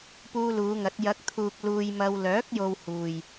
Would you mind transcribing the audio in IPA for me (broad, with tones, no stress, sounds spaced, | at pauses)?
p uː˧ l uː˨˧ ŋ ɐ˨˥ t̚ j ɐ˨˥ k̚ t̪ʰ uː˨ k̚ l uː˧ j m ɐ˧ w l œː˨˥ k̚ j o˨ w h uː˨ j